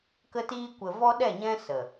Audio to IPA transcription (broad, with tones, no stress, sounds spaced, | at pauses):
k ə˧ t iː˧ kʷ ə˨ v ɔ˦ ɗ ɛ˦˨ ɲ ɛ̃˦ s ə˨